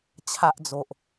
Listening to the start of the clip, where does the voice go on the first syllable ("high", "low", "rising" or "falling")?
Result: high